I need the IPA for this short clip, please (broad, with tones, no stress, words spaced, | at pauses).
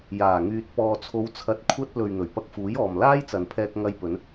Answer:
jaː˨˩ŋyː˨t̚ pɔː˨t͡sʰo˨˧wt͡sʰɐ˨˥t̚ kʷʰɐ˥t̚ lɵ˨ɥ n̪ɵ˨˩ɥpɐ˧k̚fuː˨˥jɔː˨m laː˥jt͡sɐ˨npʰɛː˧k̚ ŋɐ˧jpɵ˨˧n